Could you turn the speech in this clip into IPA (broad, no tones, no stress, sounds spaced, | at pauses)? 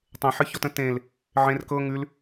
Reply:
tˤ ẽ ħ ɨ ç ɔ t ə̃ t ẽ l | ʕ ẽ r k ɤ ŋ ʉ l